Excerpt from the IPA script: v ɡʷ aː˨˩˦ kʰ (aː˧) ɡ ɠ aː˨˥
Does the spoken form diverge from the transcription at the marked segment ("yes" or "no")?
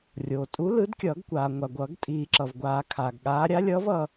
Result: yes